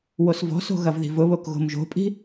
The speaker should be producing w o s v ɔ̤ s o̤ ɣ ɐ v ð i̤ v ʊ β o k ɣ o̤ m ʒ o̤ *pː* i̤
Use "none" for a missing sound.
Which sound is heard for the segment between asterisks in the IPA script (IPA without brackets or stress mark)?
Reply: pʼ